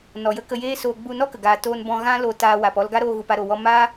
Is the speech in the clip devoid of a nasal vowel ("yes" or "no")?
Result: no